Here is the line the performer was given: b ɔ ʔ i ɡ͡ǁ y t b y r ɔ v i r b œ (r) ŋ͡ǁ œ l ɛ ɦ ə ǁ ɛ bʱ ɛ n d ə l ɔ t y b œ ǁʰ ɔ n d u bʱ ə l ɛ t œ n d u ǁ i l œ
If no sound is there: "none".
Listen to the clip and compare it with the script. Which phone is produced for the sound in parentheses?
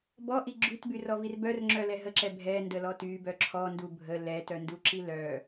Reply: r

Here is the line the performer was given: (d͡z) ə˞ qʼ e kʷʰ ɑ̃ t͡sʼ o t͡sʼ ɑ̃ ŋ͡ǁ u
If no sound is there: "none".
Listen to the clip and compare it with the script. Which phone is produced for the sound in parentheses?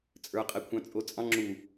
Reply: t͡sʼ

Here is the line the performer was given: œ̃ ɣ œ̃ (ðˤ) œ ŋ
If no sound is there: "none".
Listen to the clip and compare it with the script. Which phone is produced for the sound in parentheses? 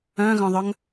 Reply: ðˤ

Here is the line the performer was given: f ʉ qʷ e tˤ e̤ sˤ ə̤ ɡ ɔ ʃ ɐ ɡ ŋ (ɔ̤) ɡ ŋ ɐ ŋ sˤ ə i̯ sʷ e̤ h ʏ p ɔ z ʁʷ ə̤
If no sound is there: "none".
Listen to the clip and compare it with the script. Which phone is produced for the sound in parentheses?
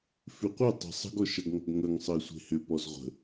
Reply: ɔ̤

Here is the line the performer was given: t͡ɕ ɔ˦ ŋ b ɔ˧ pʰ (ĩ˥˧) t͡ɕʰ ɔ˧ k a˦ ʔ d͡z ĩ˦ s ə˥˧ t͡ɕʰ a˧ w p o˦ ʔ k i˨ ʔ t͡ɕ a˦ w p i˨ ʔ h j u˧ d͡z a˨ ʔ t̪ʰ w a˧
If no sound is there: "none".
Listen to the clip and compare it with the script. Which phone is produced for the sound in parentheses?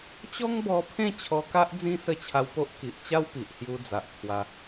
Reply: ẽ˥˧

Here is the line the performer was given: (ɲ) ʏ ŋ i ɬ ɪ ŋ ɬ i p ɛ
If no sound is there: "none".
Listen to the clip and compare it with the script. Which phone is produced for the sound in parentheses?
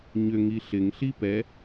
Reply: ɲ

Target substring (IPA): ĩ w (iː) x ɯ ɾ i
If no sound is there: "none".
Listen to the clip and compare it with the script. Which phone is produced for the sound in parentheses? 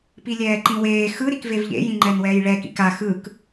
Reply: eː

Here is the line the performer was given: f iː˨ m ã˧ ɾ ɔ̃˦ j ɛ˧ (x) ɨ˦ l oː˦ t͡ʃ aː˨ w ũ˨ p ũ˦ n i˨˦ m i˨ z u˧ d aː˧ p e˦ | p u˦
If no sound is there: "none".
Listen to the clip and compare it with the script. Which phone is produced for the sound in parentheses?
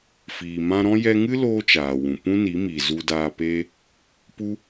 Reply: ŋ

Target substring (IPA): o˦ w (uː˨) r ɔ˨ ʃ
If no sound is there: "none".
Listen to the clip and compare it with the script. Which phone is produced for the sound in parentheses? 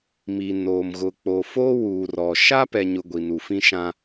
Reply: uː˨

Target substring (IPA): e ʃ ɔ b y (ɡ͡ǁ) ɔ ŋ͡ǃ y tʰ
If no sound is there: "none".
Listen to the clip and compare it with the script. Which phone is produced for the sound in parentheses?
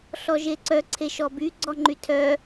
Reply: ɡ͡ǀ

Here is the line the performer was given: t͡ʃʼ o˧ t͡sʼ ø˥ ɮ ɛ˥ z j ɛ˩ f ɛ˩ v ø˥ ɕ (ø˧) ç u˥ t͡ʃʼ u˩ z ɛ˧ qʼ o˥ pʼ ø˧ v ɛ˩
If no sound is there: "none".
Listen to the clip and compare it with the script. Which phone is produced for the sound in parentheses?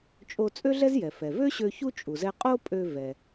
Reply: ø˧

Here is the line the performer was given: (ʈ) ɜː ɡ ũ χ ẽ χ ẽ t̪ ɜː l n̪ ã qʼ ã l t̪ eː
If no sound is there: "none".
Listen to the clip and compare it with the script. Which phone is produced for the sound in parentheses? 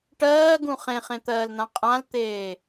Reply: ʈ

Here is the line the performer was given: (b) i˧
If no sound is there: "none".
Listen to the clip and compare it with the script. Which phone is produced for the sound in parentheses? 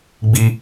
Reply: ɡ͡b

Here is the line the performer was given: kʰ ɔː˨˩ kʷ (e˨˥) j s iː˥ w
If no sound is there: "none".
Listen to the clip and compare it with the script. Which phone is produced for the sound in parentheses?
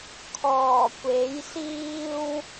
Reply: e˨˥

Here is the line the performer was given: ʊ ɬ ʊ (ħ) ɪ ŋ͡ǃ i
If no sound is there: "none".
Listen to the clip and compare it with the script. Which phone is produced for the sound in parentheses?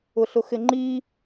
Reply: x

